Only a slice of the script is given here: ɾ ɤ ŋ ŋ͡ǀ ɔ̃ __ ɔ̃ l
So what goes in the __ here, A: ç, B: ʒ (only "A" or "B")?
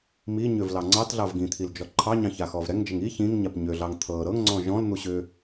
B